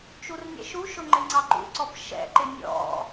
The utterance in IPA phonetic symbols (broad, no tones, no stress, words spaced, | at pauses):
t͡ʃurnʲɛ̰ʃuʃʊ ŋ͡ǃɪŋ͡ǀɑǃṵǀɔp ʃɛ̰ǃɪ nʲɔ̰